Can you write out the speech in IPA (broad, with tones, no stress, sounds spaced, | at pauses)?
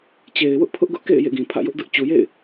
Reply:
t͡ɕ e˨ ɪ̯ w ʊ˦ ʔ pʰ ʊ˦ ʔ ɡ ʊ˦ ʔ k ḛ˦˨ ɪ̯ j ḛ˦˨ ɡ ĩ˨ pʰ ä̰˦˨ j ʊ˦ ʔ d ʊ˦ ʔ t͡ɕ u˨ j ḛ˦˨ ɪ̯